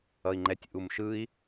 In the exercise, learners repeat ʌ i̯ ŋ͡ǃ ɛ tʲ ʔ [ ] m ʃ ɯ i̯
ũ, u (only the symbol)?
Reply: u